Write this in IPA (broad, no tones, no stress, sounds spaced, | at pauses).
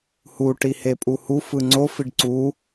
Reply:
h u ʈ i h e pʼ u h u f ɯ ŋ͡ǀ o f i ɖ ǀ u